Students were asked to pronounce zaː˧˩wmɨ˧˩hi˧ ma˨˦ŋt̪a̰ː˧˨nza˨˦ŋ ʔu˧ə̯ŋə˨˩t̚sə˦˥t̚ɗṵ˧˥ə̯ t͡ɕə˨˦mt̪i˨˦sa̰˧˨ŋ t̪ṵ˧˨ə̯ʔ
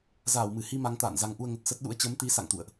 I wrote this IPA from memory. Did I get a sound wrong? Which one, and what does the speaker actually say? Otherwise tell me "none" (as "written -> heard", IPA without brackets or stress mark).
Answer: none